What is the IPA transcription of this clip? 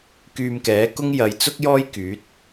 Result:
k yː˧ m k ɛː˨˥ k ʊ˥ ŋ j ɐ˨˧ j t͡s ʊ˥ k̚ j ɔː˥ j k yː˨˥ t̚

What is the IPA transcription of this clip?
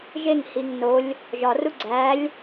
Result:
ʒ e ŋ h i ŋ n o lʲ | ʒ ɒ r u ɡ͡ǀ æ lʲ

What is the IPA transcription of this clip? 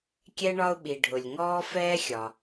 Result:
kʲ ɛ˥ ɳ ɒ˥ ʊ̯ ɓ i˩ ɖʱ ʊ˩ lʲ ŋ ɔː˥ f ɛː˥ xʲ ɒ˩

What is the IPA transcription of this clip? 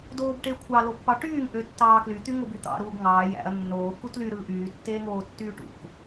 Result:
d oː b ʈ e kʷʰ ɑ l o pː ɑ ʈ yː ŋ ʔ ø tː ɑː k l y t̪ y ŋ o b y t̪ ɑ̰ ɾ uː ɡ ŋ ɑː j æ̰ ɐ̯ nː oː k u t l y ɾ ɯː ʔ yː tː eː ŋ oː tː yː ʈ ṵ k

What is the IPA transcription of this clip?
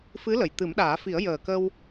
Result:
f ɨ˧˥ l ə˨˩ j t̪ ɨ˨˩˦ m ɗ aː˨˩˦ f i˨˩˦ ə̯ j əː˨˩ k ə˧ w

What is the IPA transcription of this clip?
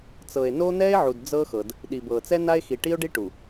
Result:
t͡s ɤ˨ e̯ n o˦ n̪ ɛ˦ e̯ ʕ u˨ d d͡z ɤ˦ x ɤ˨ d | ɗ i˨ b ɤ˨ t͡s ɛ˦ n a˦ e̯ x i˨ ʈ i˦ o̯ ɖ i˦ ʈ u˨

